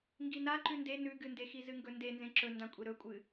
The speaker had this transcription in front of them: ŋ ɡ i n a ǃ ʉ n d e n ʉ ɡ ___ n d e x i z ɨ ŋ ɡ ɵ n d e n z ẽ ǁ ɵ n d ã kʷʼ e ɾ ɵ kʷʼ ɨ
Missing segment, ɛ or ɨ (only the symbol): ɨ